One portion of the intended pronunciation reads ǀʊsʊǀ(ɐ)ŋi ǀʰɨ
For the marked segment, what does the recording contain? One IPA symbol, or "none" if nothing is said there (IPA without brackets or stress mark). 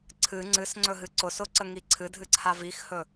ə